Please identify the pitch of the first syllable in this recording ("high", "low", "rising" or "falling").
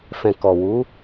low